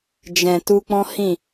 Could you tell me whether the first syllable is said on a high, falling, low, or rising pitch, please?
low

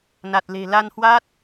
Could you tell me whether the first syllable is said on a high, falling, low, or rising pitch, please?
low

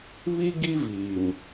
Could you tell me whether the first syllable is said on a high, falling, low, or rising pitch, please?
high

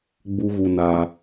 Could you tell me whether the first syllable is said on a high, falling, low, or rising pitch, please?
high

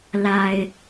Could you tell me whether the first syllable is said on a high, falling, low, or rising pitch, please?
low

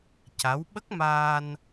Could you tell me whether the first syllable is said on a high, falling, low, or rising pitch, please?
rising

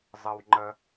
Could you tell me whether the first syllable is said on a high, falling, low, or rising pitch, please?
low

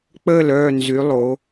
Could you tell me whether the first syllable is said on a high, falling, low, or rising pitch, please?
falling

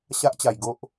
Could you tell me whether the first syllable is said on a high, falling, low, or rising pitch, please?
high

